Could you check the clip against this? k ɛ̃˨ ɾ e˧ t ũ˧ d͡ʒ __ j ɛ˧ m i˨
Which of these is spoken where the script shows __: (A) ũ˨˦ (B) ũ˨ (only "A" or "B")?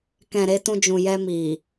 B